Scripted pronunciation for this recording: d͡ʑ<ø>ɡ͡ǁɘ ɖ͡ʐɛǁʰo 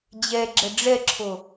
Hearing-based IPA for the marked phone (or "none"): ɛ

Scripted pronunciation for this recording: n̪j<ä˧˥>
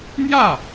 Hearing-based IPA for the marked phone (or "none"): ä˥˩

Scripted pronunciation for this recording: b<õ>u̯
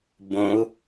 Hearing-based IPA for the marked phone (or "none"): õ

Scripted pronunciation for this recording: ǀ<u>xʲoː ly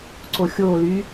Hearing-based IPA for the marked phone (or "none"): o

